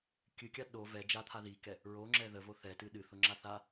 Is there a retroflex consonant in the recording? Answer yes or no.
no